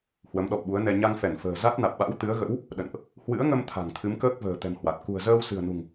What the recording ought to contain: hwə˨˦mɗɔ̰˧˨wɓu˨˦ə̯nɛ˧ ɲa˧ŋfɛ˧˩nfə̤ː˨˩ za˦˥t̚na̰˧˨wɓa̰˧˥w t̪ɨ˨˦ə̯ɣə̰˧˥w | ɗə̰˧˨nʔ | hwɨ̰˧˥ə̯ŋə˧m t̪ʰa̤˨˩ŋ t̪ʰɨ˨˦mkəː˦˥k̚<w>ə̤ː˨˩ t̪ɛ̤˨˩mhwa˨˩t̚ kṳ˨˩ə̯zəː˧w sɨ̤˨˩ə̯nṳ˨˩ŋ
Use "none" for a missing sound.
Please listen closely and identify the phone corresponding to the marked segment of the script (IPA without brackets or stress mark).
v